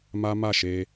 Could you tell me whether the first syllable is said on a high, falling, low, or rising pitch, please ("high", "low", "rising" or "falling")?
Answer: high